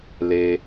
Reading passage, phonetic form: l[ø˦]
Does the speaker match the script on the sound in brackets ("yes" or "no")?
no